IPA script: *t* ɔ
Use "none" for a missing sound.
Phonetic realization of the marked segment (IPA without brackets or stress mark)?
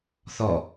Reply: θ